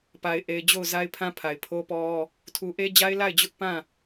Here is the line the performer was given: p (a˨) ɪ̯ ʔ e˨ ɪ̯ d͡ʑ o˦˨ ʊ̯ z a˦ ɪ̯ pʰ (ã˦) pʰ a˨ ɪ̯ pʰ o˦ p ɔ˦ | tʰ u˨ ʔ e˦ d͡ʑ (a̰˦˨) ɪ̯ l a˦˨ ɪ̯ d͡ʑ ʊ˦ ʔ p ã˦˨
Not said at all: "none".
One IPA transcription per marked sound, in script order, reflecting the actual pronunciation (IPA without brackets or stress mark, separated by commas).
a˨, ã˦, a˦